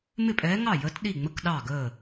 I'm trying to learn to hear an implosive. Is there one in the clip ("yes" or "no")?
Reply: yes